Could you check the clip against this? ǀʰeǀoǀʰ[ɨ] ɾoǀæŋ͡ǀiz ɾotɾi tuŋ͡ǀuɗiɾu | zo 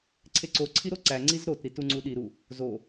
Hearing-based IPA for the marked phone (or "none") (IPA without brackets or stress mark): i